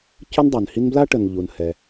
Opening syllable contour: high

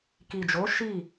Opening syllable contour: low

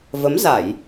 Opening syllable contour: rising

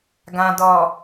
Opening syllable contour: low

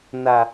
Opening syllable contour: low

